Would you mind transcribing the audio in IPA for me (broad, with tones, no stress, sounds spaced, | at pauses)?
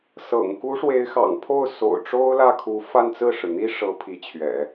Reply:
s ɤ̰˨˩ ŋ k u˧˥ ʂ w e˧˥ ɪ̯ x ɑ̰˨˩ ŋ pʰ o˥˩ ʊ̯ s o̰˨˩ ʊ̯ ʈ͡ʂ o˥ ʊ̯ l ä˥˩ kʰ u˧˥ f a˥˧ n t͡s ɹ̩˥˩ ʂ ɻ̩˩ n̪ i˥ ʂ ɤ˧˥ pʰ i˧˥ t͡ɕʰ ɥ ɛ̰˨˩˦